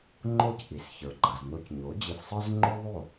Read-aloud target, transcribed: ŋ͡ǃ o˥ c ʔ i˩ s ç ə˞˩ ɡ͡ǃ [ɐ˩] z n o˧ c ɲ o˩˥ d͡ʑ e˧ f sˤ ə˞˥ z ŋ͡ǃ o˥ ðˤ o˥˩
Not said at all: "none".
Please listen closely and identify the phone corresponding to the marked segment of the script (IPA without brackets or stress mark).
ɐ˩